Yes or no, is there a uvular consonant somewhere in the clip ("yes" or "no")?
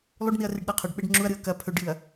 yes